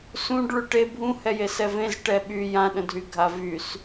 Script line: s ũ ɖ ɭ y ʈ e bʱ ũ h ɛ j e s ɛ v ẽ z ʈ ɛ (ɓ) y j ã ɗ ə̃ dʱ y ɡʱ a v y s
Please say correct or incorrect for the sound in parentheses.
correct